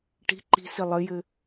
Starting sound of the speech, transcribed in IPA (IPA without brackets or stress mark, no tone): ʈ